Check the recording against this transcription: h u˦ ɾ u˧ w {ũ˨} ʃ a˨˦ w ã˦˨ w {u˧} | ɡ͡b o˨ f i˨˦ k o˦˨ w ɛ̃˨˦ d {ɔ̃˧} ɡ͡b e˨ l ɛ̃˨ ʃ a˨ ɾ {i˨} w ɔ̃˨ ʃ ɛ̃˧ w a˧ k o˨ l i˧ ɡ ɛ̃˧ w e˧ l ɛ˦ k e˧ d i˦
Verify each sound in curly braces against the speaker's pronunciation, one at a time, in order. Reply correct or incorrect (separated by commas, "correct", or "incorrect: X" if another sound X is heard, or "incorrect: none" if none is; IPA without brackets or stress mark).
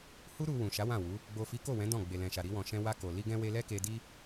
correct, incorrect: u˨˦, incorrect: ɔ̃˦˨, incorrect: i˧